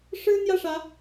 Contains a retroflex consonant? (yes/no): yes